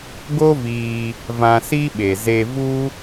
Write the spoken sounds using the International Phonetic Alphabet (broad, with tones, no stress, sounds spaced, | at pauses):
ɡ o˦ v iː˧ | v ã˧ s i˦ ɓ e˨ z e˧ v u˦